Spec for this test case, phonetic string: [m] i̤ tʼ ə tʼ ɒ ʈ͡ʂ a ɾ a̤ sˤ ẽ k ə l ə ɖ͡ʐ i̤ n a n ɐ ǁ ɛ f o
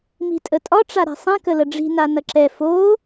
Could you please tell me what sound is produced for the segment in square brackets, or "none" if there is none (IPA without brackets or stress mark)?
m